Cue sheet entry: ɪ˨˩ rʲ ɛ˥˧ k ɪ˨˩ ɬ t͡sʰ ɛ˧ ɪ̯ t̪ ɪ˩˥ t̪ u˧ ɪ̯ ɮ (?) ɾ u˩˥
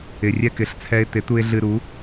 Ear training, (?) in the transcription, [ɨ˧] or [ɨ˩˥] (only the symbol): ɨ˧